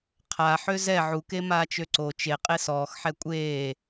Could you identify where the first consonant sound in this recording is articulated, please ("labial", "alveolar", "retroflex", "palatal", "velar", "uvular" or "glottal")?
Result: uvular